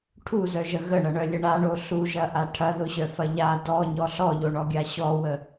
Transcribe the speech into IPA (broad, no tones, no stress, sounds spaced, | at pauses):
ʈʰ u z œ ʒ ə ɣ ə ɳ ɐ ɳ œ lʲ ə ɳ a ɳ o ɬ u ʒ ɐ ʔ a ʈʰ ɐ ð ʊ ɕ œ f ɐ ʎ a d ɔ ɲ ɔ ɬ ɔ ʎ o ɳ ɔ ɡʲ a ɕ ɔ w ə